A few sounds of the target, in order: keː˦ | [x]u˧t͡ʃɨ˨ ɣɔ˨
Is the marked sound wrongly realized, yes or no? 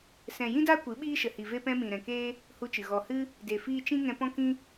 yes